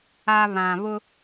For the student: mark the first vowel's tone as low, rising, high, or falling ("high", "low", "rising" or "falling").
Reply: low